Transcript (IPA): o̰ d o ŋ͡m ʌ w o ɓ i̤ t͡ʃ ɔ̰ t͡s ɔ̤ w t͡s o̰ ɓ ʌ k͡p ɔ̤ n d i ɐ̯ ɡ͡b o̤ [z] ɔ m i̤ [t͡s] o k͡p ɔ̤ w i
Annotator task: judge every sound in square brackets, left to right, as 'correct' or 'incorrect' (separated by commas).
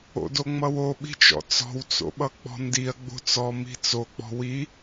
incorrect, correct